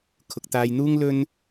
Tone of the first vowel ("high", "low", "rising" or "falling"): low